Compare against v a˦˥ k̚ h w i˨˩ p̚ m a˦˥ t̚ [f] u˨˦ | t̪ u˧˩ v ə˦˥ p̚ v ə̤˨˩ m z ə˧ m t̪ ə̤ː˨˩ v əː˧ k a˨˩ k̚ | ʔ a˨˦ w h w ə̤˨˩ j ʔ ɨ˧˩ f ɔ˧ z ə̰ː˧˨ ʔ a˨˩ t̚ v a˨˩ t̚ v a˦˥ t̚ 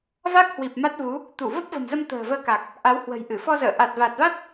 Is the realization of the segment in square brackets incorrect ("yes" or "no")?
yes